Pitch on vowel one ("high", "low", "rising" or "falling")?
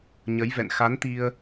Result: rising